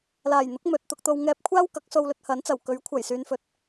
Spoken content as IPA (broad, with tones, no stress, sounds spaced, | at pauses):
l aː˨˩ j n̪ ʊ˨˥ k̚ m ɵ˨ t̚ t̪ ʊ˧ k̚ t̪ o˧ w ŋ ɛː˧ p̚ kʷʰ aː˥ w k ɐ˨˥ k̚ s o˧ w l ɵ˧ t̚ h ɐ˨˥ n t͡s ɐ˨˩ w k ɵ˨˥ ɥ kʷʰ ɐ˨˩ j s yː˨˧ n f ɵ˨ t̚